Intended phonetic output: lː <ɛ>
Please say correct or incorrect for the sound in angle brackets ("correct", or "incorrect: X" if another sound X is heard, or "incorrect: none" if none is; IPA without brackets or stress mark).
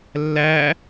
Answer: incorrect: æ